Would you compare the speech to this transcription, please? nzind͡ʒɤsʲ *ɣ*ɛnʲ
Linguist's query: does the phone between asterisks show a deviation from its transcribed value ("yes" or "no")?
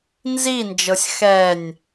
yes